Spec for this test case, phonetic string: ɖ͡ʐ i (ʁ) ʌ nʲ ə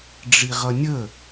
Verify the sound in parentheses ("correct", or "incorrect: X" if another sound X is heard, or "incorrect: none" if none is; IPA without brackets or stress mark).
correct